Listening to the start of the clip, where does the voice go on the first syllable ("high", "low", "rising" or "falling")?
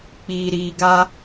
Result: low